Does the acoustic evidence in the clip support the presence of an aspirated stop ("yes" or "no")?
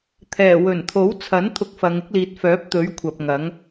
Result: yes